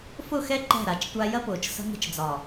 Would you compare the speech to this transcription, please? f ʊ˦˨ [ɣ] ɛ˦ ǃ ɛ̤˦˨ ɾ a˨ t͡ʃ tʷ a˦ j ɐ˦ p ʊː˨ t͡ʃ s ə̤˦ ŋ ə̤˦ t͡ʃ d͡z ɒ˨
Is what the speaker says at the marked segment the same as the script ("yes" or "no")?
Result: no